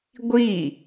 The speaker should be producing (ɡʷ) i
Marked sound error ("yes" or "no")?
no